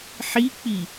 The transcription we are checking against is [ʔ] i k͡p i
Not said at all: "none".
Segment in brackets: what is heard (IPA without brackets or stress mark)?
ħ